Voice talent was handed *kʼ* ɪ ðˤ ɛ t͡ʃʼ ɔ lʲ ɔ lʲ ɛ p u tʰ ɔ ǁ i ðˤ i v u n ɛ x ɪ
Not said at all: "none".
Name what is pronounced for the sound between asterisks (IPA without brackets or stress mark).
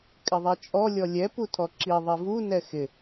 kʼ